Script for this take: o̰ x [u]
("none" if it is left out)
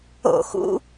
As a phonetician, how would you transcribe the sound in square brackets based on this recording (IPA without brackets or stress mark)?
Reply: ṵ